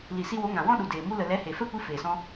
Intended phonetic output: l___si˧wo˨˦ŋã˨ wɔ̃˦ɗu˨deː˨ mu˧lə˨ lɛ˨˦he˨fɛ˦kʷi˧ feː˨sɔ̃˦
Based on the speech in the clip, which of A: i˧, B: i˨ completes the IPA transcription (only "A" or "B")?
B